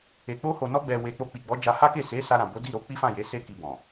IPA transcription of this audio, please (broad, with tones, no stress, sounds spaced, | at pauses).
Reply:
e˨ k͡p o˧ h o˨ n ɔ˧ ɡ͡b ɛ˨ w e˨ k͡p o˧ k͡p i˨ ɡ͡b ɔ˨˦ d͡ʒ a˧ h a˦ k e˦˨ s e˨˦ s a˧ ɾ ã˨ b o˨˦ d i˦˨ ɾ o˨˦ k͡p i˦ f ã˦˨ j e˨˦ s e˦ k i˧ b ɔ̃˨